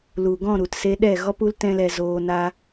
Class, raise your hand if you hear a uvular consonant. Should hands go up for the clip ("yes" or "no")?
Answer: no